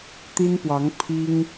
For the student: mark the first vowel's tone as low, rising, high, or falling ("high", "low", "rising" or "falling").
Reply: high